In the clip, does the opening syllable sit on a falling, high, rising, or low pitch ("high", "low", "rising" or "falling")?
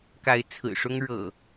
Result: rising